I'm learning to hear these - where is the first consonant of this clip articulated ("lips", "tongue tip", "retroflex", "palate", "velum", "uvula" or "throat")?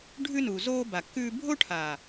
retroflex